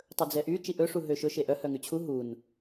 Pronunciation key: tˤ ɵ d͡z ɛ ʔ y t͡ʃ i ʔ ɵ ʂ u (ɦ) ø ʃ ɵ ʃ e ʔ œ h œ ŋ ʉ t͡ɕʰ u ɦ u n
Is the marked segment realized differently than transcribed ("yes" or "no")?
no